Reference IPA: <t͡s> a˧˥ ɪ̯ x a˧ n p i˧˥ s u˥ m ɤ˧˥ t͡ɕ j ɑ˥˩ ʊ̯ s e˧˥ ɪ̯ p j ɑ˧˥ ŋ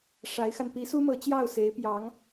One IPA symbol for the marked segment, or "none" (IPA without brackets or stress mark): ʂ